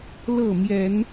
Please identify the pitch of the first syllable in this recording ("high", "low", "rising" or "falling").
falling